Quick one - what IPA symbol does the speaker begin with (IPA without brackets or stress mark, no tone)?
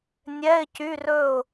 nʲ